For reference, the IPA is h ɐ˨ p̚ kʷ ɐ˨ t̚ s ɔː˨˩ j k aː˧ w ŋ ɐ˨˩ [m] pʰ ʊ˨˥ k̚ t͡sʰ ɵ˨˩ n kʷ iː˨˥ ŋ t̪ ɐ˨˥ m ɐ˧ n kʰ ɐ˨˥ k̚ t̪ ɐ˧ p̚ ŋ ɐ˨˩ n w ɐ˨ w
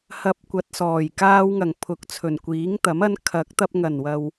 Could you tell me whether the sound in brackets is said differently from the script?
yes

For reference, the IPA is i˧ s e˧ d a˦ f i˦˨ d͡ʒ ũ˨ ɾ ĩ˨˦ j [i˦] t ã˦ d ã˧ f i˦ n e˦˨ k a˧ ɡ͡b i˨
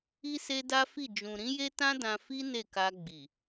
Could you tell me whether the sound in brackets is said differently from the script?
yes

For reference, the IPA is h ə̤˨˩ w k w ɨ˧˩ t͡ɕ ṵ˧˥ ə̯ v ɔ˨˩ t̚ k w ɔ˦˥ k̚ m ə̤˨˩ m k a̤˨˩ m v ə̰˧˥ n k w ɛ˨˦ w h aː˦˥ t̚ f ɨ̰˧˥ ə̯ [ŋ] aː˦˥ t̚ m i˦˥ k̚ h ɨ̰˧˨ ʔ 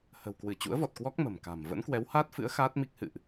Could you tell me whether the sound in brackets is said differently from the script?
yes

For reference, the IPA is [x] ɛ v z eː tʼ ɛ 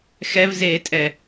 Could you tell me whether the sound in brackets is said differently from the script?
no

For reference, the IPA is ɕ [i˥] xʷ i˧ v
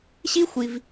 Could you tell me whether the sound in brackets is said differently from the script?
no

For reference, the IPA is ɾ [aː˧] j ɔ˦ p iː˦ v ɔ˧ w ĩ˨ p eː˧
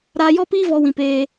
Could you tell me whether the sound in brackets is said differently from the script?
no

